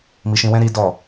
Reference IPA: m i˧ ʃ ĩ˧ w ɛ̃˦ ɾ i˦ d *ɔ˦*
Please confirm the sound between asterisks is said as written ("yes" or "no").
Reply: no